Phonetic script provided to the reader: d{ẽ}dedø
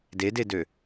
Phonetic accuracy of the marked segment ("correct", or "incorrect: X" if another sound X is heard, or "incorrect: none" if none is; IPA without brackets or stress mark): incorrect: e